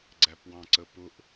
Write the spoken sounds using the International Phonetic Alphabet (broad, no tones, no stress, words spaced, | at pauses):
ɡ͡ǀæpwɑ̃ǀəpʊʔ